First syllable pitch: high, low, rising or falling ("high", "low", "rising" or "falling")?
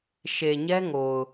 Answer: low